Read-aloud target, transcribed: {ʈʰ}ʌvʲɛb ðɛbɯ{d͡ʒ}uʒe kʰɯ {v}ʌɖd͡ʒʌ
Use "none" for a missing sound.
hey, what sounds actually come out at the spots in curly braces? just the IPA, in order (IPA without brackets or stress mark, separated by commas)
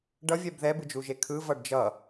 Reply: ɖ, d͡ʒ, v